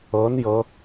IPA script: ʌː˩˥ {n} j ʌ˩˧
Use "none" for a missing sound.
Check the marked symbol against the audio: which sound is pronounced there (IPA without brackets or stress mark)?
n